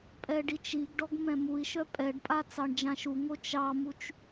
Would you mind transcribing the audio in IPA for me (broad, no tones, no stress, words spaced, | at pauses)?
pʼɛɖit͡ʃiɡɖɔɡ mɛ̃mui̯ʃœ pʼɛɖpʼa t͡sɑɳd͡ʒãʃuŋo t͡ʃɑmut͡ʃ